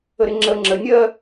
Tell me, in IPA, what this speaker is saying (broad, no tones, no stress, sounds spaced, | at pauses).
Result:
ə ɾ ɪ ŋ͡ǁ ə ŋ͡ǁ ə nʲ ɜ